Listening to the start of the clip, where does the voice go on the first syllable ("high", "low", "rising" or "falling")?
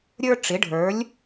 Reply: high